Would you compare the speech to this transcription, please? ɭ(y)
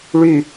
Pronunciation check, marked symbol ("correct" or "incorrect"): correct